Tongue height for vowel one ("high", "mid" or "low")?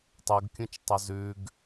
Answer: high